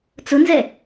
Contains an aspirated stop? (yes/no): no